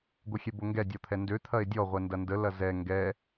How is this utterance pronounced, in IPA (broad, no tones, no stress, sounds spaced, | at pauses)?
ɡʷ ə xʲ ɛ b o ŋ ɡ ɛ dʲ ɔ t̪ʰ ɛ n d ø t̪ʰ ɐ e̯ dʲ ɔ ʁʷ ɛ n d ɐ n d ə l ɐ z ɛ ŋ ɡ ɛ